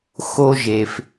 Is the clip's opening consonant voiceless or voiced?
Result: voiceless